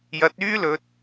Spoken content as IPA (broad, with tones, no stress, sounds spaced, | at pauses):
j ɐ˨˥ t̚ yː˥ l ɵ˨˥ t̚